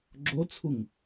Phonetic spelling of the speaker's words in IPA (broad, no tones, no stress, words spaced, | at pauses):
ɡ͡ǁot͡sʰuŋ